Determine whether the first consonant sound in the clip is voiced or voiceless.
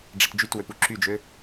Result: voiced